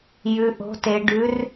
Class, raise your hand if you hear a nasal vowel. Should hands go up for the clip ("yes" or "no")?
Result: no